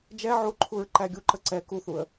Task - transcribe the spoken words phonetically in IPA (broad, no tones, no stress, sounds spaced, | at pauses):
d͡ʒ ɛ ʕ u ǃʰ u ɹ ǃ æ ɡʲ u ǃ ə ǀ ɛ k u θ u ə̯